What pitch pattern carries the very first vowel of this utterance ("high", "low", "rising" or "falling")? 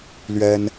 high